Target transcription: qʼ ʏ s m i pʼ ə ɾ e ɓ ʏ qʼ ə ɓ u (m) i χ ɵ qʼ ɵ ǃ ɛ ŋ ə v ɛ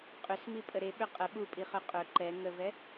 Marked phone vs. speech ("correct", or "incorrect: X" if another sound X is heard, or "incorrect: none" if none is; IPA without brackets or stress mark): incorrect: pʼ